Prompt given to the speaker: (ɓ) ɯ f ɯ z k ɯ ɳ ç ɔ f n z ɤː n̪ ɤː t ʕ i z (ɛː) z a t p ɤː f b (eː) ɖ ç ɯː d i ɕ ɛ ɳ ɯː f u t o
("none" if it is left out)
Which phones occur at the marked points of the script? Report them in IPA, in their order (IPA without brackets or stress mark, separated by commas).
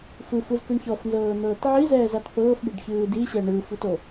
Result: f, ɛː, e